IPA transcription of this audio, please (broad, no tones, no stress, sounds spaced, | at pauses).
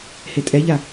h e tʼ ɛ ʎ a